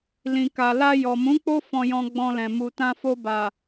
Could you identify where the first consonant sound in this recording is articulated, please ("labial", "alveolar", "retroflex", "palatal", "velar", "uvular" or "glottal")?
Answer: alveolar